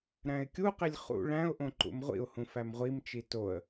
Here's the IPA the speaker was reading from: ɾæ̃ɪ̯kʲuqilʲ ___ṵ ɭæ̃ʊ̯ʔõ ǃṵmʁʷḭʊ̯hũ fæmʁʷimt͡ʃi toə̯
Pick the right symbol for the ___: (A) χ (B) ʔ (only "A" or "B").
A